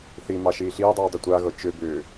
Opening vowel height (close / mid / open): close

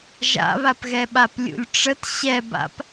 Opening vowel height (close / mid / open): open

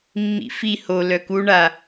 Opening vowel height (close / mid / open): close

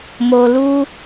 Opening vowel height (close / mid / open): mid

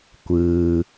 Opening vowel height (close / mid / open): close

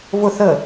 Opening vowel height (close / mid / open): close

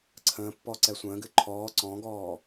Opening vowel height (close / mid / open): mid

